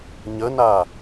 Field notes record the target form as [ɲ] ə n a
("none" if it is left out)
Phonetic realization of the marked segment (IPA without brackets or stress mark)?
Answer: ɲ